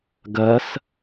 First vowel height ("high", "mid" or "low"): mid